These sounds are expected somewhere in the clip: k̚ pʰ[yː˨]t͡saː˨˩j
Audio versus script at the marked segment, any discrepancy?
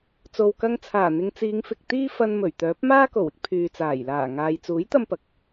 no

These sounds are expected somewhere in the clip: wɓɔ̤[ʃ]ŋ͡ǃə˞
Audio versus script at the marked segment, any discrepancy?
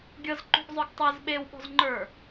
yes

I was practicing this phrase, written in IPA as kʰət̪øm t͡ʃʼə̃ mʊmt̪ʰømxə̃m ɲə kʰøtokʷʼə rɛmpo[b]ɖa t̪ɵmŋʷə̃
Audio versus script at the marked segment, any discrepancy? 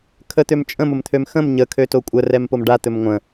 yes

